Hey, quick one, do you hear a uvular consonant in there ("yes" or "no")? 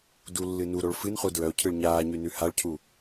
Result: yes